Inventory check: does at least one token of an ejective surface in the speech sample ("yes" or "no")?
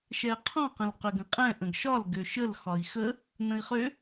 yes